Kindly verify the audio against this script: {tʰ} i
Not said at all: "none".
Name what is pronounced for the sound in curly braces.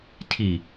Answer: tʰ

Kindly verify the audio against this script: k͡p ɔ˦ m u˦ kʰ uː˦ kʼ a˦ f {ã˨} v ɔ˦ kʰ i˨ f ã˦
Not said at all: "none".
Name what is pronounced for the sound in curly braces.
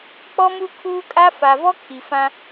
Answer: a˨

